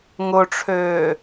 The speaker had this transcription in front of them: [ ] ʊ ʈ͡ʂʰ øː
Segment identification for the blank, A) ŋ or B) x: A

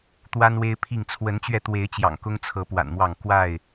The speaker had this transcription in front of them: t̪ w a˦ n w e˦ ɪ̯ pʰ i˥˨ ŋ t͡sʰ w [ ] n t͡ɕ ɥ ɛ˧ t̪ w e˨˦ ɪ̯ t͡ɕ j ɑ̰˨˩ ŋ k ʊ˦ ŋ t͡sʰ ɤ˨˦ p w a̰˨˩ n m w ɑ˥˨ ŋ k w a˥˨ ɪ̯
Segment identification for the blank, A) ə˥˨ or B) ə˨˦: B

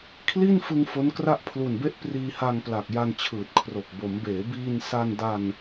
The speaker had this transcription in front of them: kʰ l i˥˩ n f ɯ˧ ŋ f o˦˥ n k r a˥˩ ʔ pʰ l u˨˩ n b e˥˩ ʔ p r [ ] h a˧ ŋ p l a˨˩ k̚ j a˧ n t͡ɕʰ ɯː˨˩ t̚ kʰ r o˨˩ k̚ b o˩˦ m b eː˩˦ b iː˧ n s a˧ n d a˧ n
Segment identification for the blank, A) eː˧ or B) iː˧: B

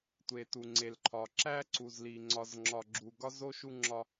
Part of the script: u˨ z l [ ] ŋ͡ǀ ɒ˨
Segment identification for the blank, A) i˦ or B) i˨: B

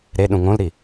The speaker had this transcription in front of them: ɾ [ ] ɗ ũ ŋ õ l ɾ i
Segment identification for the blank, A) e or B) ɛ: A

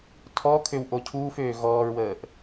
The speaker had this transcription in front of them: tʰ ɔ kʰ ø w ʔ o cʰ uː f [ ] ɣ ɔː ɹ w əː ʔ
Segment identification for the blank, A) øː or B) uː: A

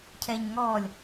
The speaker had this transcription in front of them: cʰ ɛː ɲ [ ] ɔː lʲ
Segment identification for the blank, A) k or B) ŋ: B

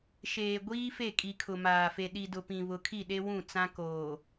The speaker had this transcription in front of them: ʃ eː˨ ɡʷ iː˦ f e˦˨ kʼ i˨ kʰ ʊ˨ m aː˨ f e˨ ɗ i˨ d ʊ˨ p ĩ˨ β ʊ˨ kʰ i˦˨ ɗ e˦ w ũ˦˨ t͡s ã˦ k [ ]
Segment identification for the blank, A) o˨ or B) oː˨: B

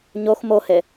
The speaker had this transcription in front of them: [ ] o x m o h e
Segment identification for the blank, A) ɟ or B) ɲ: B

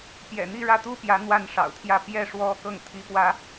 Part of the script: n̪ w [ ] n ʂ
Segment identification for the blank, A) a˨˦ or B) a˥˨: B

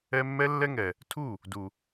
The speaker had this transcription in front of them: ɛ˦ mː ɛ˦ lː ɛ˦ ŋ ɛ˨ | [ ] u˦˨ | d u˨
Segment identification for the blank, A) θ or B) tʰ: B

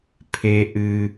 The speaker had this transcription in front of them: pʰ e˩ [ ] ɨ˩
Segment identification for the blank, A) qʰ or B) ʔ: B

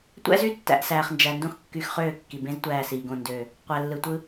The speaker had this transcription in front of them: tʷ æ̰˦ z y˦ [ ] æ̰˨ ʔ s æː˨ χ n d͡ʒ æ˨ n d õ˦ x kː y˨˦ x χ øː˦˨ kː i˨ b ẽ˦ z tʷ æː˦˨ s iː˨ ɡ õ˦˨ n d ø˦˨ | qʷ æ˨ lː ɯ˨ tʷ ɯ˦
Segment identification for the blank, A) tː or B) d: A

